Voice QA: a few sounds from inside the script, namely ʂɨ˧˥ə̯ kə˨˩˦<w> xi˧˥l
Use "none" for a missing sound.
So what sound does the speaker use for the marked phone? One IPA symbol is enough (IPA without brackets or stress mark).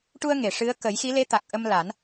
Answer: j